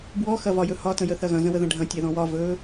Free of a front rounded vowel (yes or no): yes